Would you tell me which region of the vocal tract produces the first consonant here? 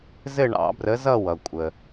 tongue tip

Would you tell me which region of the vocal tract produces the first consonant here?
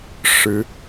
retroflex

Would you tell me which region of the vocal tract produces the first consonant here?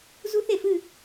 tongue tip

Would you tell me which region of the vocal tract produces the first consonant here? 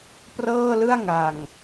lips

